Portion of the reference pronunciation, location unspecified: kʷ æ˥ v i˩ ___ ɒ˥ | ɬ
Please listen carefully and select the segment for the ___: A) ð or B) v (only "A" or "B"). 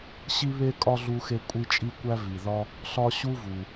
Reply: A